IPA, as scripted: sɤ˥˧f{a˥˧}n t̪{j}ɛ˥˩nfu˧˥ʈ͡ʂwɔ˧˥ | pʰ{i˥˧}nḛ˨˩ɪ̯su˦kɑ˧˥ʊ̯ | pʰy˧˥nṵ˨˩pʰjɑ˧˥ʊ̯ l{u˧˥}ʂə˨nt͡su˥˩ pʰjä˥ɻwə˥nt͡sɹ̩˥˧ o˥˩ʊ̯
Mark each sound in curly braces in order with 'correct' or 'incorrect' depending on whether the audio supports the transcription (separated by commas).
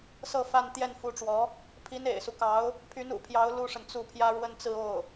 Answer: correct, correct, incorrect, incorrect